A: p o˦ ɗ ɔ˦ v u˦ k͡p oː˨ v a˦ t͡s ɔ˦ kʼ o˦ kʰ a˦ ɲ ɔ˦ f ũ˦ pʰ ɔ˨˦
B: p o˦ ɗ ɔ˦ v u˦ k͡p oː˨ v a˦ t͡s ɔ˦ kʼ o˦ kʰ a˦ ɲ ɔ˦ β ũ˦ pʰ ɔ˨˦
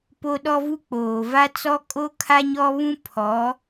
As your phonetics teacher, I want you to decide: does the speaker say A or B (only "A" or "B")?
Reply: B